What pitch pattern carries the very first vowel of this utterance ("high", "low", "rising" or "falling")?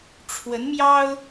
rising